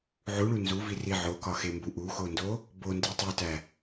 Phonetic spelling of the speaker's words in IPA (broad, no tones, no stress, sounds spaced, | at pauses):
ʕ u ɭ u n z u v i r i ʕ o k ɒ x e m b u ʔ u x o n d o | b o n d i tˤ o t æ